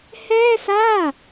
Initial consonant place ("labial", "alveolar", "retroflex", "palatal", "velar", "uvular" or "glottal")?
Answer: glottal